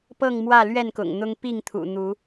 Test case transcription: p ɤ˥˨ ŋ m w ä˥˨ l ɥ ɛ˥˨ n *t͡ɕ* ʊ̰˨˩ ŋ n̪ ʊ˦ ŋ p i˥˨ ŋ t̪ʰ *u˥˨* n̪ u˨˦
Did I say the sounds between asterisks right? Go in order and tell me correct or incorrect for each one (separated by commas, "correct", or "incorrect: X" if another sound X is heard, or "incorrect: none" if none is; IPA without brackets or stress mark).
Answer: incorrect: k, incorrect: ṵ˨˩